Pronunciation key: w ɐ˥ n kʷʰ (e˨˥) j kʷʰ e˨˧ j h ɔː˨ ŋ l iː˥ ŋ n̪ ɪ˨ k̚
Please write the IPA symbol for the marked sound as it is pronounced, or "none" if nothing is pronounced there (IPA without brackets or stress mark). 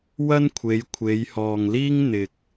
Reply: e˨˧